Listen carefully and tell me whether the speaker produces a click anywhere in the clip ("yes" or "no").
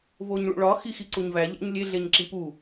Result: yes